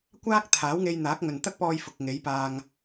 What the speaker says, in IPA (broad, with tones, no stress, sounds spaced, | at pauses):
kʷ aː˥ k̚ t̪ʰ aː˨˥ w ŋ e˧ j n̪ aː˨˥ k̚ ŋ ɵ˨ n t̪ ɐ˥ k̚ p ɔː˧ j f ʊ˨ k̚ ŋ e˨˥ j p aː˧ ŋ